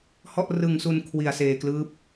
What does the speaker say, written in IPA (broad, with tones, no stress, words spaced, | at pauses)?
hɔ˥˩ʔrɯ˧ŋsu˧n kʰwi˧a̯seː˧klɯː˦˥p̚